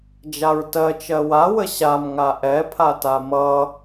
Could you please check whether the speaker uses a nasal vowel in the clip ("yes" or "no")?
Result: no